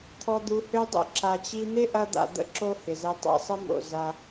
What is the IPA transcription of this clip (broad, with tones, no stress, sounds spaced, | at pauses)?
t̪ʰ ɔ˧ d̪ u˧ h ø˦ dˤ o̰˦ ǁ a˨ t͡ɕ i˧ n̪ ɪ˦ ʔ ɐ˧ d̪ a̰˨ d̪ ə̰˧ ǁ o˦ h ɪ˨ z ɛ˧ tˤ a̰˧ sˤ ə˦ m o̰˨ z a˧